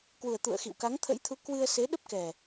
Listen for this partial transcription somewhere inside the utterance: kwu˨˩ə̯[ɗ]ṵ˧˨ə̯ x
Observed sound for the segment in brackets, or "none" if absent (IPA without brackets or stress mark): t̪